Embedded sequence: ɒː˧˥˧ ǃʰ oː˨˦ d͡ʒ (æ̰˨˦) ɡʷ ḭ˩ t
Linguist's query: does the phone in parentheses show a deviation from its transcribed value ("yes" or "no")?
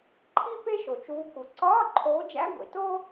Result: yes